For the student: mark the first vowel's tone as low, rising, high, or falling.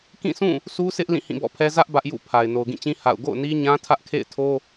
falling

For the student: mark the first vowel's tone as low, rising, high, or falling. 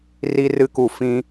high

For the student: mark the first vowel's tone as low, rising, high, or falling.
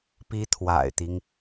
high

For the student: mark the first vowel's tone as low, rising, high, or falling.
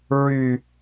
high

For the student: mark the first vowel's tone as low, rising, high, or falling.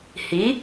rising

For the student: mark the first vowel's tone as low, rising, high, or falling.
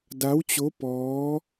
rising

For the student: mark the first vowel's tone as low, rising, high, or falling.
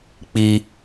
high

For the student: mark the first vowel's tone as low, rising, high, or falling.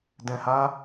low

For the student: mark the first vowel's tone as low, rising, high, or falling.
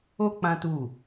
high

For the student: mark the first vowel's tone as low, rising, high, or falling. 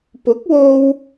rising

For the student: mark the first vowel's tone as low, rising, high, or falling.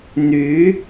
rising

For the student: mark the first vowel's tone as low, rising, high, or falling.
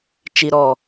low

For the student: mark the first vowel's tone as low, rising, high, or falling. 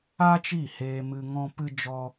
high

